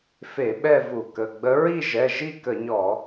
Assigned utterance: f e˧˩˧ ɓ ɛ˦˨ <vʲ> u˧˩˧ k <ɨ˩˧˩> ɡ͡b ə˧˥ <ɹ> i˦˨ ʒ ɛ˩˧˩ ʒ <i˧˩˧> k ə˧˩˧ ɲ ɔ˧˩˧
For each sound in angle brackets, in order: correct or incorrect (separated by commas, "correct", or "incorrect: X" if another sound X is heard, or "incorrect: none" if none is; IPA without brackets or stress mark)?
incorrect: v, incorrect: ə˩˧˩, correct, incorrect: i˦˨